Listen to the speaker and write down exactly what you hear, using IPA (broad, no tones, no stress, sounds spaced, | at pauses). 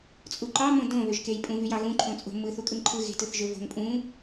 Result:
t͡sʼ u ǃ ɑ m õ d õ β ø ʒ k e j pʼ ũ v y j ɑ ɣ ũ ǃʰ õ t͡sʼ o̤ m ɯ θ u kʼ ɯ ŋ ǃʰ ɯ ɣ e̤ t ɯ θ ʒ ø v o̤ ŋ pʼ ũ